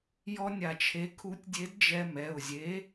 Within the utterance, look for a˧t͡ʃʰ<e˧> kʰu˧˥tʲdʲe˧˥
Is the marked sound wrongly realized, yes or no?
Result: yes